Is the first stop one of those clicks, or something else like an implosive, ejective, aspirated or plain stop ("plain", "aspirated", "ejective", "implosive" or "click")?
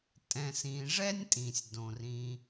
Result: ejective